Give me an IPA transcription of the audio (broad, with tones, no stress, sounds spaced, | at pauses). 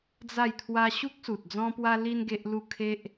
d͡z a˥˧ j t̪ʰ w a˦ ɕ u˦ k̚ s u˨ t̚ d͡z ɔ̃˦ p w a˦ l i˦ n ɡ e˦ ʔ l u˥˧ kʰ e˦ ʔ